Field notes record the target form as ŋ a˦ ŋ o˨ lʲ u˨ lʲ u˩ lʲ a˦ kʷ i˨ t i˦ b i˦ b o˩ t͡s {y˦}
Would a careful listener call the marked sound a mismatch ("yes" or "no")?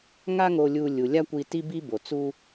yes